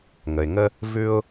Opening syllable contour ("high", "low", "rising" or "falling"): low